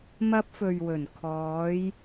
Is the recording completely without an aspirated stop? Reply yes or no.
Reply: no